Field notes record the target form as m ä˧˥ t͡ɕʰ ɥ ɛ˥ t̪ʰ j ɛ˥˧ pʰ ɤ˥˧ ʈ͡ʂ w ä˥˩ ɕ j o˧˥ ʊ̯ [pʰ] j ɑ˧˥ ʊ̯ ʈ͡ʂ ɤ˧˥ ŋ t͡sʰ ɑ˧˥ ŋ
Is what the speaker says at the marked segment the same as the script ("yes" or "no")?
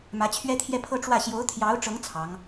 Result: no